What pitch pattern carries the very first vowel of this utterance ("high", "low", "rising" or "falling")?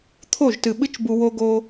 falling